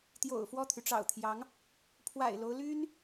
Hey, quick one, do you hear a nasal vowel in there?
no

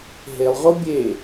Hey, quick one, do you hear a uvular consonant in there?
yes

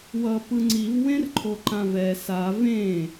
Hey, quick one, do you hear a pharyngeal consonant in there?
no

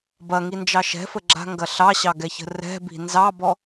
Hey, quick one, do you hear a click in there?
yes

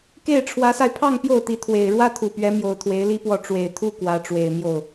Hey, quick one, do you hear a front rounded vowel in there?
no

